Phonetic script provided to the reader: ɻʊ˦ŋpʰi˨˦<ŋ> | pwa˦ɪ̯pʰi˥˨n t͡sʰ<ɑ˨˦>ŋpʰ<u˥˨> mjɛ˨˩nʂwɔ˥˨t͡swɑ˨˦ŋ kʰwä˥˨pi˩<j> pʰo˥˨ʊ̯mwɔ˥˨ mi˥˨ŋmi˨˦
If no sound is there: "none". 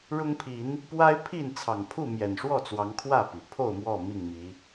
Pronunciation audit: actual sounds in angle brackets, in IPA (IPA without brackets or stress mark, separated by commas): n, ɑ˨˩, u˥˨, none